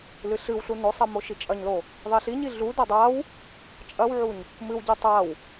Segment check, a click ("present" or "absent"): absent